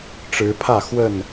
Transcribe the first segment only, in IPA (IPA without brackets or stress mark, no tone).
ʈ͡ʂ